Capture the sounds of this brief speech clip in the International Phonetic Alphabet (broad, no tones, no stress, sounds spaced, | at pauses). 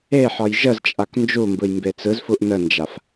e ħ ɒ j ʒ ə z t͡ʃʼ a k n d͡ʒ u m b ɯ j m b e t͡s ɯ z f u ʔ n ə n d͡ʒ a f